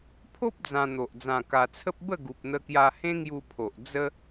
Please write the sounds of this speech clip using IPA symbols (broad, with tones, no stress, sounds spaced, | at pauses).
pʰ o˦ p̚ d͡z ã˧ n̪ o˨ ʔ d͡z ã˨˩ k a˧ t͡sʰ ə˦ p̚ b ə˥˧ ɡ u˨ p̚ n̪ ə˧ k j a˧ h ẽ˦ ŋ j u˧ pʰ o˨ ʔ d͡z ə˦